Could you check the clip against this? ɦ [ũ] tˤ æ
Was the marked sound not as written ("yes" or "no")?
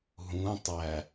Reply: no